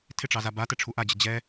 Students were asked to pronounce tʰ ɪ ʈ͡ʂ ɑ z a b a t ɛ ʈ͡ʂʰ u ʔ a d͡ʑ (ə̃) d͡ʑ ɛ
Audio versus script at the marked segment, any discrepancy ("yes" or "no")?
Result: yes